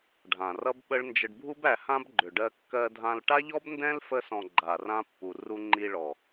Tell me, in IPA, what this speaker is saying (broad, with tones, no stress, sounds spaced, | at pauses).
ɖʱ ã˨ r ʌ˦ b ɓ ə˦ ɭ n d͡ʒ ə˧ ɖ bʱ u˦ b æ˧ h ã˦ b ɡ͡ǃ ʏ˨ ɖ ɜ˧ kː ɜ˧ dʱ ã˧ l ʈ a˦ ʎ ɔ˦ b n d ɛ̃˦ l f ə˧ s ɔ̃˨ ɡ͡ǃ a˨ r ã˦ pː u˨ r u˧ ŋ͡ǃ i˧ ɭ ɔ˨